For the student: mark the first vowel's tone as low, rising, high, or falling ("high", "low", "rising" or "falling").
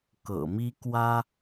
low